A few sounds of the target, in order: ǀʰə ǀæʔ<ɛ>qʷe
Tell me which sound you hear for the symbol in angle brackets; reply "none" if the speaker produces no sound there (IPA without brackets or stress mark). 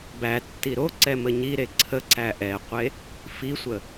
ɛ